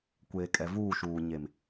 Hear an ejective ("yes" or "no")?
yes